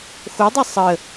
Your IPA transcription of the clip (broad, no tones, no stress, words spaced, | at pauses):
xodˤʌ sˤə